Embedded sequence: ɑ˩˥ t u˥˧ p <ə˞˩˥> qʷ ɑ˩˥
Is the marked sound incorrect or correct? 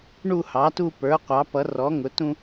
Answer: correct